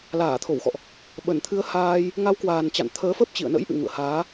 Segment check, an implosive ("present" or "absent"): present